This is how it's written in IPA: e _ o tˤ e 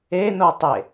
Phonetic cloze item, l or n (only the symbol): n